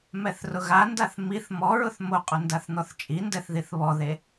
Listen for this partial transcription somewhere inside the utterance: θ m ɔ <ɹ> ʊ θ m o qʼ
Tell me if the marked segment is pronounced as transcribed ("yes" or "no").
yes